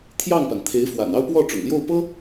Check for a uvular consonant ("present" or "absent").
absent